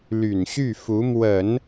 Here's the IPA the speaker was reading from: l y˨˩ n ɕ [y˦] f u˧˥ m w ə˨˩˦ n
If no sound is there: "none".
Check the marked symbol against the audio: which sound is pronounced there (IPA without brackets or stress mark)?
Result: y˥˩